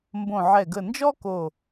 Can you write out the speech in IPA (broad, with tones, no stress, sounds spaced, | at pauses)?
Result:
m b õ˧˩ ʕ ɛ˧˩ ɡ ə˧˩ n d͡ʒ ɔ˥ k o˧˩